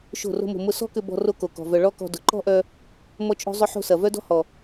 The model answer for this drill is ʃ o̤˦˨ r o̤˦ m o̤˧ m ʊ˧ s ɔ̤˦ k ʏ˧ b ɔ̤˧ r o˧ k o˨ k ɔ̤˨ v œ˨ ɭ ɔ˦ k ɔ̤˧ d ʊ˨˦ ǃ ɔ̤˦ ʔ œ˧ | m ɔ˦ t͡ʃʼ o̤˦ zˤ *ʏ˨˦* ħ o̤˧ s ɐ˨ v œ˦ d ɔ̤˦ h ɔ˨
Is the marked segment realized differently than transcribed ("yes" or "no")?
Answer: yes